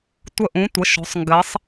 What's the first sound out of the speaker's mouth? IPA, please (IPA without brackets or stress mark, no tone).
tʷ